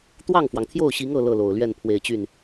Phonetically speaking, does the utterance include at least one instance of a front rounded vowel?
yes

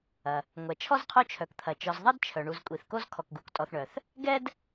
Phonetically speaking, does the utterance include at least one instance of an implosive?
no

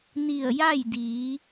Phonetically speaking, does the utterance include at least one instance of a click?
no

